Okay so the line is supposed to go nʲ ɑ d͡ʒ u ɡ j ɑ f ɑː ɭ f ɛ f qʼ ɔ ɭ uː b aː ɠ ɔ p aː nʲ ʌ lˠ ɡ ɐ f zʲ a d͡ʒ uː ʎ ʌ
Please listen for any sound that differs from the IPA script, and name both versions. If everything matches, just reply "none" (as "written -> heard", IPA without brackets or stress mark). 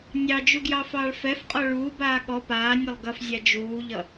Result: none